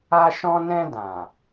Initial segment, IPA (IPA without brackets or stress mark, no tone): a